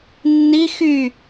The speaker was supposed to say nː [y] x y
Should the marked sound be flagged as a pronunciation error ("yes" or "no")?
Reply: yes